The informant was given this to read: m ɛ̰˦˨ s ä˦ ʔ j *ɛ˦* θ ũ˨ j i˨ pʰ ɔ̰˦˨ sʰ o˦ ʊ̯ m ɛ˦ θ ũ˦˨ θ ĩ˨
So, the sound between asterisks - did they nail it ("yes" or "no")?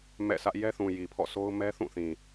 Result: yes